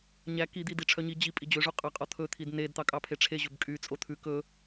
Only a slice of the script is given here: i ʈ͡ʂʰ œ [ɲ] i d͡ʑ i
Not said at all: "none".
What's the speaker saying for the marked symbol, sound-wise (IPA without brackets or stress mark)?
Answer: ɲ